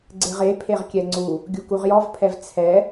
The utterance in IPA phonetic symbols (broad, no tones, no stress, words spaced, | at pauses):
ɡ͡ǀeʁe pʰeʁkʲɛŋ͡ǀu | ɡʲukuʁjɔvpʰɛv t͡sʰɛ